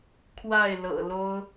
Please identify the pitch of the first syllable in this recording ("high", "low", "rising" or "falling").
falling